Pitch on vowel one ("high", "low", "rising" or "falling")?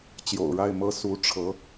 low